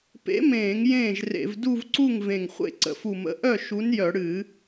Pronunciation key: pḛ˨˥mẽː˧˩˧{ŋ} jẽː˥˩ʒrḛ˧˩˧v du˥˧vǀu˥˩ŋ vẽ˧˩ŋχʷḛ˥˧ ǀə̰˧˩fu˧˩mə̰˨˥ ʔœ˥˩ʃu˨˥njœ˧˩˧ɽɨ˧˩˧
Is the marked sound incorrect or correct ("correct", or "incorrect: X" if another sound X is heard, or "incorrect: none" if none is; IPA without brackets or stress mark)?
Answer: correct